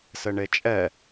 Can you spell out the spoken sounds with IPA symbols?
sɘɳet͡ʃʼɛ

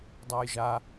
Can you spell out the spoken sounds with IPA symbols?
dˤajʒa

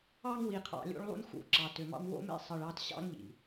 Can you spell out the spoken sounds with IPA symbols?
ɑ˦ŋwi˨qʰɑ̰˨ lʲo̰˦ɭlˠṵ˦nxṵ˨ǁɑ˩ tø˨mɑ̰˥m wo̰˦mḛ˦ sˤɯ˨ɭɑ˦t ɕɑ̰˥ŋʎḭ˩

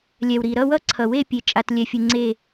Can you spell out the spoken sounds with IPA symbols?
lʲɛ˩wɾi˩ ɾʌ˦˨wʌ˦˨ǀʰʌ˩we˦˨ pʲe˩t͡ʃʼa˩tlʲɛ˩fʲɯ˩ ŋ͡ǀe˦˨

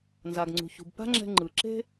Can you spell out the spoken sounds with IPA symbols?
nza˩ɡŋ͡ǀṳ˩ çṳ˩bpa̤˥ŋ͡ǁɛ̤˧ŋ͡ǃɯ˩ ǁe̤˥

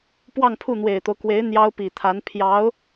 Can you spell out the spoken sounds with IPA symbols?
pwɑ˥˧ŋpʰu˥˩n̪we˨˩ɪ̯t̪o˦ʊ̯ kwe˧˥ɪ̯ n̪jɑ˥ʊ̯pi˨˩t̪ʰa˧˥n pʰjɑ˧˥ʊ̯

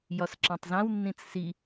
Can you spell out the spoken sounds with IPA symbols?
jɒsǁãtˤzãw nːĩt͡ssi

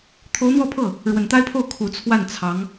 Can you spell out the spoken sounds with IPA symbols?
t̪ʰo˧˥ʊ̯n̪wɔ˥˧pʰɤ˥˩ | ɻwə˨˩nt̪a˥ɪ̯pʰo˥˩ʊ̯ kʰu˨˩ t͡sʰwa˥˩nt͡sʰɑ˧˥ŋ

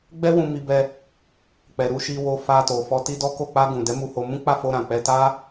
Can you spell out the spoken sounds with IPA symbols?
ɡ͡bɛ˦wũ˧mi˧bɛ˧ | k͡pɛ˨ɾu˧ ʃi˧wo˧ fa˧to˨ fɔ˧ti˦dɔ˦ko˦˨ k͡pa˧ɡũ˨ dɛ˨˦mu˧ho˧mũ˦ k͡pa˦˨fo˧ɾã˨ k͡pɛ˧ta˦

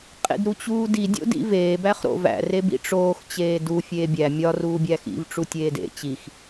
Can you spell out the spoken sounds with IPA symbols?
qʼḛdɾut͡ɕuːdi dʲo̰dḭveː bæχɾo̰væ̰ rebḭʈ͡ʂoːx t͡ɕeːdu fʲeːbʲæ mʲɒ ruːbʲæxḭv ʈ͡ʂutʲeːdḛ t͡ɕix

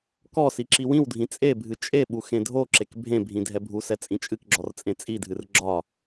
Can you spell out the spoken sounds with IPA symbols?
kɔ siǁiwĩwdʱĩ t͡sʼebʱɨ t͡ʃʼeɓu xẽdʱoǁek bʱẽbʱĩ dʱɛbʱusɛ t͡sʼĩt͡ʃʼɨkɡ͡ǁɔr t͡sʼẽt͡sʼidʱɨr ɡ͡ǁɒ

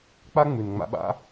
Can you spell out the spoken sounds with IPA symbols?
k͡pa˦ŋ͡mʉ˨nŋ͡ma̰˧ɓa̰˦

